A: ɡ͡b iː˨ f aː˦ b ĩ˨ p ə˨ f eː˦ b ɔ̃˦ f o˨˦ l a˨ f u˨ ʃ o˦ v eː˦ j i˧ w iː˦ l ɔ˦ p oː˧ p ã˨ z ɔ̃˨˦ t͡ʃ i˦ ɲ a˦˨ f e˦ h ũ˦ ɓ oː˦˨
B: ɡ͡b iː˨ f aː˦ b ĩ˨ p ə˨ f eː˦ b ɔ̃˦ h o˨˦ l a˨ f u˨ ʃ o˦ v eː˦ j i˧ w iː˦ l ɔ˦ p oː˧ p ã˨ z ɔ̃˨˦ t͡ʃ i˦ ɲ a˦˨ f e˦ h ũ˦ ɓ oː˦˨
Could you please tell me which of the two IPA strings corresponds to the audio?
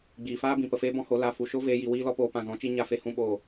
B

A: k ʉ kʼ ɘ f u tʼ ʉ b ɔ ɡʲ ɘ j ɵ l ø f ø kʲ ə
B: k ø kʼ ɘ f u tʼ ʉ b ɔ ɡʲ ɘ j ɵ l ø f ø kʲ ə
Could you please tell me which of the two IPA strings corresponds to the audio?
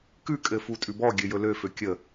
A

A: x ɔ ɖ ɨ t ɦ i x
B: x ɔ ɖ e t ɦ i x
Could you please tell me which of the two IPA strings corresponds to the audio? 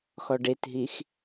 B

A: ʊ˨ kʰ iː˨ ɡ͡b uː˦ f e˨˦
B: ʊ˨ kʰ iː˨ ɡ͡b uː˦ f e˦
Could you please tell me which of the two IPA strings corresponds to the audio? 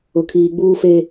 B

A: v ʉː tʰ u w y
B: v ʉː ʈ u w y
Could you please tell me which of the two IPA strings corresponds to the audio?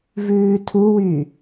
A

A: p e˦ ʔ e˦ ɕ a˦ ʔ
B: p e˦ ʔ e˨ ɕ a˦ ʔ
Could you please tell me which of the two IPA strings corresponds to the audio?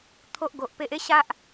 A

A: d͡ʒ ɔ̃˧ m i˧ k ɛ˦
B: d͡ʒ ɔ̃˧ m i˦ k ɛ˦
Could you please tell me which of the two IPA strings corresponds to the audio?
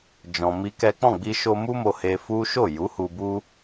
B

